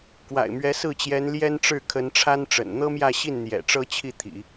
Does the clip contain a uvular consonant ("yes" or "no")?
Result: no